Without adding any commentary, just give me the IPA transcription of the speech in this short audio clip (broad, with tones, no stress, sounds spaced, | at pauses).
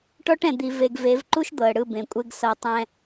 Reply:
ʈ ɔ˦ ʈ ɛ̃˨ d̪ i˨ v e˨ ɡ v e˨˦ v ǃ u˦ ʃ d̪ ɤ˨ ə̯ ɽ ɯ˦˨ b ẽ˨ kʷʼ e˦ ɡ s ɤ˨ tˤ ɛ̃˨